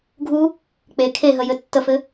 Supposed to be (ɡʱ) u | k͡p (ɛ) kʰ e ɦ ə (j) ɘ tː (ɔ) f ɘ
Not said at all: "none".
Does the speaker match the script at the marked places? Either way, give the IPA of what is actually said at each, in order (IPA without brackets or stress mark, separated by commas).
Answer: ɡʱ, e, j, ə